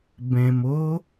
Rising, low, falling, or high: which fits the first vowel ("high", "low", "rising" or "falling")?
low